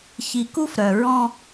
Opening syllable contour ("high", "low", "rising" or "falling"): low